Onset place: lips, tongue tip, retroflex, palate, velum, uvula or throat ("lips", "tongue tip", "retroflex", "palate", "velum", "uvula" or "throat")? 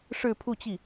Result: retroflex